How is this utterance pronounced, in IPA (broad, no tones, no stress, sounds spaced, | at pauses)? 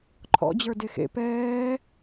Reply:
ǃʰ ɔ̰ d͡ʑ ə˞ d e x ḛ p ɛː